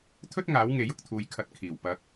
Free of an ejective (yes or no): yes